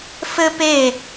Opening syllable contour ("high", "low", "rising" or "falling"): high